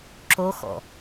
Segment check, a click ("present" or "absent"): present